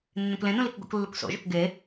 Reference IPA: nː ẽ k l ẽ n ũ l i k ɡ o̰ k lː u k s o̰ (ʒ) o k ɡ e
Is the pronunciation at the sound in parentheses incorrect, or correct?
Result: correct